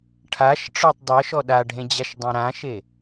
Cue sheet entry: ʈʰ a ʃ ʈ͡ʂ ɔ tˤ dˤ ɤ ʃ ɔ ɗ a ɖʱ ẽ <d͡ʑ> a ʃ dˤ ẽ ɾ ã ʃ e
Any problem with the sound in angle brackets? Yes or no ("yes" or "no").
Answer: no